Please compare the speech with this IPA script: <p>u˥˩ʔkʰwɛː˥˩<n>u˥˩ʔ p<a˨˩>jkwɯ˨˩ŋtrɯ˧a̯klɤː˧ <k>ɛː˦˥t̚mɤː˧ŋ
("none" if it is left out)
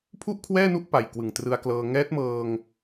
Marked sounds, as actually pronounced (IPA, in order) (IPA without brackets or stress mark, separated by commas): pʰ, n, a˨˩, ŋ